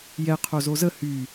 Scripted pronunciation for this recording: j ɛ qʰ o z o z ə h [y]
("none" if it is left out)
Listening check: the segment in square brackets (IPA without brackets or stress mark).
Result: y